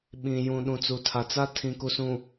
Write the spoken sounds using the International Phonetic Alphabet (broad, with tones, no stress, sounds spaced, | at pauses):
ɓ ĩ˨ j ũ˨ ɗ ũ˨ t͡s u˨ tʰ a˨ t͡s a˦ tʰ ĩ˨ k u˨ s ũ˨